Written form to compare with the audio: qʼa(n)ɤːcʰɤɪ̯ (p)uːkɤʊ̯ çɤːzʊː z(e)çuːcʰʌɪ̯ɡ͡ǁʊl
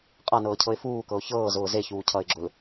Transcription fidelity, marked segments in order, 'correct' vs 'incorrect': correct, incorrect, correct

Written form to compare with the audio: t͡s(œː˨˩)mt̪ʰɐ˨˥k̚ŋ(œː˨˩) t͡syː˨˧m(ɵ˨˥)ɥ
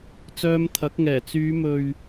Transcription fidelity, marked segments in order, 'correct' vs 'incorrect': incorrect, incorrect, incorrect

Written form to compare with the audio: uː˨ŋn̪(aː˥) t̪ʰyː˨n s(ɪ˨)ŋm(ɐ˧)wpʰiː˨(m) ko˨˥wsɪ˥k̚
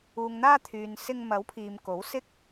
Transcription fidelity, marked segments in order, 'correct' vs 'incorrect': incorrect, incorrect, incorrect, correct

